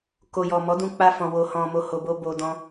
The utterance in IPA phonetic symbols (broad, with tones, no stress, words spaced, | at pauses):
ko˨jɔ˨mɔ˨˦ dũ˧k͡pa˧fɔ̃˨ wo˨ hɔ̃˨mo˨ho˨bo˧ bo˧dɔ̃˦